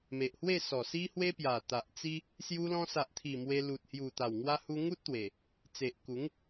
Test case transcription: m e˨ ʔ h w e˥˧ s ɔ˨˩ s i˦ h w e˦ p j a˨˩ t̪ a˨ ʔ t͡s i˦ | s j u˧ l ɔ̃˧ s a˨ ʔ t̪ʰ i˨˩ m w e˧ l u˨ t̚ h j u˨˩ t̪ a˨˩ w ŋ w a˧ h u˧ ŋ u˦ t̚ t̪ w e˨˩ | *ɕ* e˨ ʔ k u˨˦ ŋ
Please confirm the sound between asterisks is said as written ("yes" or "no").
no